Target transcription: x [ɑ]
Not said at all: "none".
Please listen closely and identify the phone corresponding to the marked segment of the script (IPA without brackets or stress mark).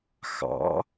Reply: ɑ̰